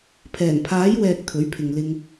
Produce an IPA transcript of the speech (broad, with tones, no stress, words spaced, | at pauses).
pʰɛː˨˩npʰaː˨˥jwɛː˨k̚ t̪ʰɵ˨˥ɥpʰɪ˨ŋlɪ˧ŋ